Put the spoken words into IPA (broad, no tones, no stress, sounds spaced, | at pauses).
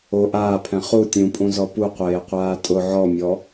o ʔ aː pʰ ɛ̃ χ u tʲ ũ pʼ ũ z ɔ p u qʷ eː qʷ aː tʼ ʊ ʕ ɔ mʲ ɔ